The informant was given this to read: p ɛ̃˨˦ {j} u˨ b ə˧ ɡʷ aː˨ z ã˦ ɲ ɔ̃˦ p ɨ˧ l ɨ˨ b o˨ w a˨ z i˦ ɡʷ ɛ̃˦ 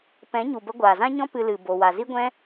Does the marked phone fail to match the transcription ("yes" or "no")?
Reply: yes